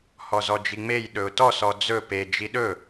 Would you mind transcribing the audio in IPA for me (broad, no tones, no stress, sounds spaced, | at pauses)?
h ɔ z ɔ d͡ʒ i ŋ͡m e j ɗ ɵ ʊ̯ t ɔ s ɔ d͡z ɵ p e d͡ʒ i ɗ ɵ